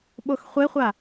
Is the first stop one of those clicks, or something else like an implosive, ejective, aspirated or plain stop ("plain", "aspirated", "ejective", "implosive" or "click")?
implosive